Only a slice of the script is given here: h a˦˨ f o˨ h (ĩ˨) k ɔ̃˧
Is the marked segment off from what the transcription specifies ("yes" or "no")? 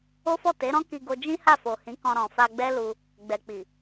yes